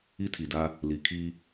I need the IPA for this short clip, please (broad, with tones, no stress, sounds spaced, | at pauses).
i˦ tʰ i˨ d a˦ | l i˨ kʰ i˦